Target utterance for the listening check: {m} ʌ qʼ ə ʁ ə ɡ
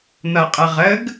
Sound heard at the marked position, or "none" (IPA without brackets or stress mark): n̪